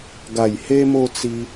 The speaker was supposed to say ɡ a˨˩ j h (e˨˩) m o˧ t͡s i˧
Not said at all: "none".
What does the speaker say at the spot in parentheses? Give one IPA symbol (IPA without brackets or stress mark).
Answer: e˧